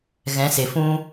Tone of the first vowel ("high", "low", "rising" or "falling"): rising